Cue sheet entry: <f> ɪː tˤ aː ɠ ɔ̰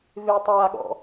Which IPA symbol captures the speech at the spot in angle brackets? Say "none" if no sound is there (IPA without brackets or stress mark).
v